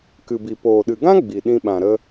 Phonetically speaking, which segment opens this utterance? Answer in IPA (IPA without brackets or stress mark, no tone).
k